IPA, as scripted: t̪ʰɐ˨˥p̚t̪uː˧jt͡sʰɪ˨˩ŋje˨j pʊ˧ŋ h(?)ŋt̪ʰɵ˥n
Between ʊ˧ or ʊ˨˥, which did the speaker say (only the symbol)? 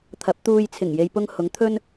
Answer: ʊ˨˥